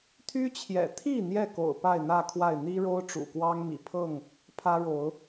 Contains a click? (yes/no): no